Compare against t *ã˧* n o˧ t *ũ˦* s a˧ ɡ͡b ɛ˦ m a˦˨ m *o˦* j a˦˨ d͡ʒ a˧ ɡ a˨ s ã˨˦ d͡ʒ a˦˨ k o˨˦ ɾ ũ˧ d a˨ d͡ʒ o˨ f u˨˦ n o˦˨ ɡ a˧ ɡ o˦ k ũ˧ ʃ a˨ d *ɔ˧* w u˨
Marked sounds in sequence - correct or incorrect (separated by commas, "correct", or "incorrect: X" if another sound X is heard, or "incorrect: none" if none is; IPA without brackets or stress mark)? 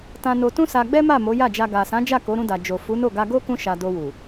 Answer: correct, correct, incorrect: o˨˦, incorrect: o˧